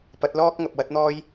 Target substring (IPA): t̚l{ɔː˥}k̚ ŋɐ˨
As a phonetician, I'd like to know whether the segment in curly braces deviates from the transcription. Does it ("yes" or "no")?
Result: no